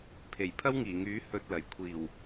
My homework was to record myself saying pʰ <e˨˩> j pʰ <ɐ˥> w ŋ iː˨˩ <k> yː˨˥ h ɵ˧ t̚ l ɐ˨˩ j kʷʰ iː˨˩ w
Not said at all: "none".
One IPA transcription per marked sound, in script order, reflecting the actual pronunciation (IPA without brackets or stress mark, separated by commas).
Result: e˨˩, ɐ˥, ŋ